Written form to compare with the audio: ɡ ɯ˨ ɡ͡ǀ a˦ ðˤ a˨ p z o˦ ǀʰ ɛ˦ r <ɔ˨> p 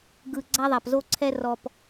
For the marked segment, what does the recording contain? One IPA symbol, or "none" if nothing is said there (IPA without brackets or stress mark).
ɔ˨